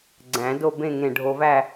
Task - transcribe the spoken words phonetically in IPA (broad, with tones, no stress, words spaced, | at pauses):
ɡ͡ǀæ̃˨˩˦do˥˧bẽ˥˧ ŋẽ˧˩ɖʱo˧væ˥˧